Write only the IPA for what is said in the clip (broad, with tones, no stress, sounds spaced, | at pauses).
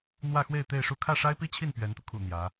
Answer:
n̪ w ä˥˧ x w e˥˧ ɪ̯ t̪ e˥˧ ɪ̯ ʂ u˥˧ kʰ ä˥˩ ʂ a˥ ɪ̯ p i˥ t͡ɕʰ i˥˩ n p ɥ ɛ˧˥ n t̪ u˧ kʰ ṵ˨˩ n̪ j ä˧˥